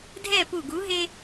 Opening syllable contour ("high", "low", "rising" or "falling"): falling